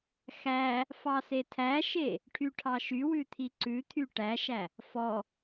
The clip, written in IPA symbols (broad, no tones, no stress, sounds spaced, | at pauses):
x æ | f ɑ s e tʰ æ ʃ e | ʈʰ y ʈʰ ɑ ʃ y w ʉ t̪ʰ i ǀ ʉ t̪ʰ y ʈ æ ʃ æ | f ɔ